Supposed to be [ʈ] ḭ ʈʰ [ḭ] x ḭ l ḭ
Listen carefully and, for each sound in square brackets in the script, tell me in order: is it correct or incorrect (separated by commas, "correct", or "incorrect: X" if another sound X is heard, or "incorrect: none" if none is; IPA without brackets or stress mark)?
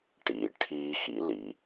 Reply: correct, incorrect: i